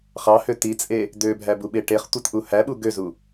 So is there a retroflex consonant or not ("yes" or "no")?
yes